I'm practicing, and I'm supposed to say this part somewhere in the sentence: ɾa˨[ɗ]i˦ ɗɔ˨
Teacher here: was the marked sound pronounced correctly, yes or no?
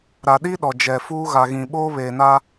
yes